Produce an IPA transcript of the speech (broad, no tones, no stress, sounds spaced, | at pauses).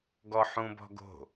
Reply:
ɡ ɔ ħ ũ b ɔ̤ ɡ o̤